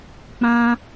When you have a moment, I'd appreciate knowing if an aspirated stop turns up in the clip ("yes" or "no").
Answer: no